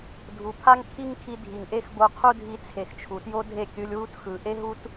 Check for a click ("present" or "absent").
absent